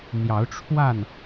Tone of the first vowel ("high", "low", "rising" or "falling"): rising